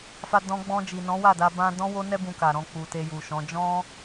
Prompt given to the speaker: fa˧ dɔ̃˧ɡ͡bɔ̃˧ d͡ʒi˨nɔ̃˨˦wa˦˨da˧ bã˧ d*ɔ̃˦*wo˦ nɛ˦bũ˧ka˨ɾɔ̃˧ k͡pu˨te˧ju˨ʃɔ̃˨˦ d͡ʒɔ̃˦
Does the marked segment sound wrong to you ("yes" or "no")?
no